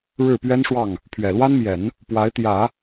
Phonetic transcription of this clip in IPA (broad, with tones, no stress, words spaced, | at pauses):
ɻɻ̩˥˩pɥɛ˥nʂwɑ˥˩ŋ | pʰɥɛ˨˩lwa˥nmjɛ˨˩˦n | pwa˧˥ɪ̯t̪jä˨˩˦